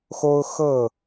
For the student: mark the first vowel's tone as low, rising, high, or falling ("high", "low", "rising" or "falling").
high